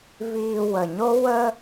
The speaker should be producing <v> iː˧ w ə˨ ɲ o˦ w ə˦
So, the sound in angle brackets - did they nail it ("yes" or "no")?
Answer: yes